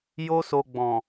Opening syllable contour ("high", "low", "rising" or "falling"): high